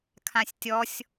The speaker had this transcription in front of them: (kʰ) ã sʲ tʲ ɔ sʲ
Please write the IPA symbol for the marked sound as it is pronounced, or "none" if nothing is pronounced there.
kʰ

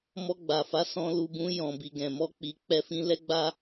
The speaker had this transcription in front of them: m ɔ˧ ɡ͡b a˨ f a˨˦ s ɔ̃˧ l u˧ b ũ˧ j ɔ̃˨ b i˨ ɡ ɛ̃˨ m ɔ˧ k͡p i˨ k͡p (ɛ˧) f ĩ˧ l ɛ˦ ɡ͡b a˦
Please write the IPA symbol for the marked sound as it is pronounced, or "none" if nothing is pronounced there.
ɛ˧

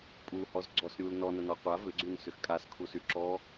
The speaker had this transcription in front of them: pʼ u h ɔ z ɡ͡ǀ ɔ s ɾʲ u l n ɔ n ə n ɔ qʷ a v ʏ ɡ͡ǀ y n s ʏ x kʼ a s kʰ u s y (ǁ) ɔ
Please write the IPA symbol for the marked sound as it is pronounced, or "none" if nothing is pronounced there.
ǁ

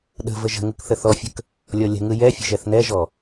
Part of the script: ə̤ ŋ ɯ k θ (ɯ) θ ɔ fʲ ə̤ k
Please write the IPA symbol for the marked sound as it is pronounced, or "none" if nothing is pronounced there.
ə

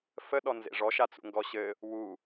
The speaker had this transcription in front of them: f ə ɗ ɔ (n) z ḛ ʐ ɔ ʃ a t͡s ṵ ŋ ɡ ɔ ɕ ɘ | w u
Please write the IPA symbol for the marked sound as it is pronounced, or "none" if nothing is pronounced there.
n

